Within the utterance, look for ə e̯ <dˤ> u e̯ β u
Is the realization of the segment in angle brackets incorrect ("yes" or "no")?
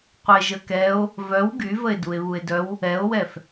yes